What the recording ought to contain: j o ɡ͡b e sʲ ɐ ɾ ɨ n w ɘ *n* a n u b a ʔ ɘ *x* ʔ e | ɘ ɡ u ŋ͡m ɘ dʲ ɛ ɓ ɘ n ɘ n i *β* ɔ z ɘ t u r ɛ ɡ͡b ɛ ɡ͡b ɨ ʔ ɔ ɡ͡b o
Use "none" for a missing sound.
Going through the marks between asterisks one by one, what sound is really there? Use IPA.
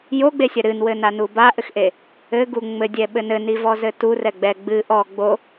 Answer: n, x, v

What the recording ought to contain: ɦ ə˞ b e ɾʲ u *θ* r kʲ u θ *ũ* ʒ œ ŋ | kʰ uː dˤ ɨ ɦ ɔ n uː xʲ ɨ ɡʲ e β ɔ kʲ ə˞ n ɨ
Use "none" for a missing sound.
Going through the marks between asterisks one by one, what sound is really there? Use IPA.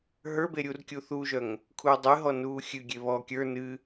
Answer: none, u

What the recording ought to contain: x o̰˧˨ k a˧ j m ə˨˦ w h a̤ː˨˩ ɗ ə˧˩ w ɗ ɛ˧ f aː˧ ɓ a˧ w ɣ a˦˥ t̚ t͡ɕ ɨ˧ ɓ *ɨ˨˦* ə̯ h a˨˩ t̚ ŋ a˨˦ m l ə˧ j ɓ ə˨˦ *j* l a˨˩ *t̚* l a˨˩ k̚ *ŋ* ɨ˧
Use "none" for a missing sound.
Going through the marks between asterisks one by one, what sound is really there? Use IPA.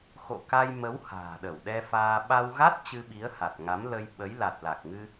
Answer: i˨˦, j, t̚, ŋ

